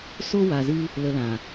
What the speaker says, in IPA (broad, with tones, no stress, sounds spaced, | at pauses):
s o˧ w a˨ z ɨ˧ | l ə˨ l ã˨